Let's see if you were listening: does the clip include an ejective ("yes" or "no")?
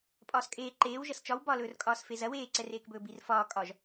yes